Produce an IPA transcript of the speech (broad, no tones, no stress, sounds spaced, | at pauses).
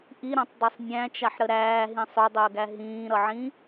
ʔ i ɾ ã tˤ dˤ i sˤ nʲ æ̃ t͡ʃ a ħ ɾ ə ɾ æː ɦ ĩ sˤ o dˤ əː ɡ æ ɦ ĩː ɾ ʌ ʕ ĩ